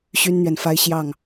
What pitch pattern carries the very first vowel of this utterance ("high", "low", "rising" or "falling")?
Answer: high